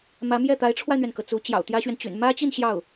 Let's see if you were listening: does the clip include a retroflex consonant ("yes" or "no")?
yes